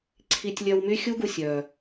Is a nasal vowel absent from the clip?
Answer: yes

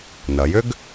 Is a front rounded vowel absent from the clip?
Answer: no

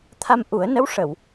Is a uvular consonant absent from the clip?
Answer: yes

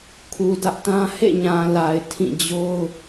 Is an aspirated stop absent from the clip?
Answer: no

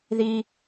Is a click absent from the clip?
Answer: yes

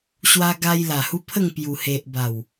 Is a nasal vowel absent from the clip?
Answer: yes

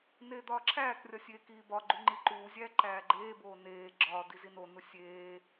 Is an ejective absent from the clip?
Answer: yes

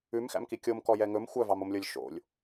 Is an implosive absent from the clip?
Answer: yes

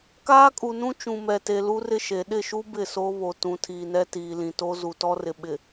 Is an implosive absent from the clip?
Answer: no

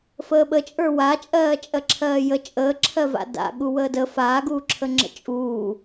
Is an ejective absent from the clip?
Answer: no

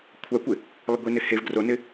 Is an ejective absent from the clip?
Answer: yes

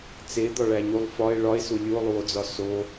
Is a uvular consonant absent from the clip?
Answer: yes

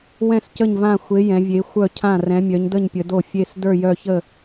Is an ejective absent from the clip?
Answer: yes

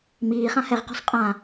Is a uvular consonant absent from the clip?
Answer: no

